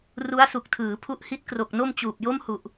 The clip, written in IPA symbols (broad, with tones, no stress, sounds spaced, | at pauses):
r u˦˥ a̯ s u˨˩ k̚ tʰ ɯː˩˦ pʰ u˦˥ ʔ h i˦˥ t̚ k r o˨˩ k̚ n o˥˩ m t͡ɕ uː˨˩ p̚ j o˥˩ m h u˨˩ ʔ